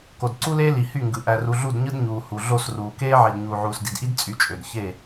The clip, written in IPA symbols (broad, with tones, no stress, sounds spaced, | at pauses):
k o˨ d ǀ u˦ l eː˦ l i˨ h y˦˨ ŋ ɡ ɯ˨ ʔ æ˨ r u˨ ɮ u˦˨ d ɲ ɯ˦ d ɲ uː˨ h u˨ ɮ o˦˨ s r uː˨ k eː˦ ʕ i˨ d ɲ uː˨ ʕ uː˨ s d i˨ d ʔ i˦ d t͡sʼ y˨˦ t͡ʃʼ ø˨ d ç e˦˨